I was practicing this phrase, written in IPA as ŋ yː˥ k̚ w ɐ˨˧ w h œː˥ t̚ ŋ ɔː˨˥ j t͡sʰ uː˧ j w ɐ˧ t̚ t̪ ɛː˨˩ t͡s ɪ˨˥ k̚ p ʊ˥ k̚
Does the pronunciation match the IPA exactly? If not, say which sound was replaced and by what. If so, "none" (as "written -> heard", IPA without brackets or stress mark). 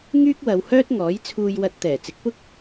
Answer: none